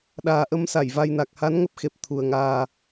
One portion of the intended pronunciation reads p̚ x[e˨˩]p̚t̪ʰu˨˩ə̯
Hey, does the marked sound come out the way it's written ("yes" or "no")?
yes